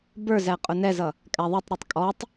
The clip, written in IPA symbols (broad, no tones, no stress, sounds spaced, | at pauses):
b ə˞ z æ qʼ ʊ n ɛ z ʌ | kʼ æ ðˤ ɛ tˤ ɾ ɔ tˤ kʼ ɔ tˤ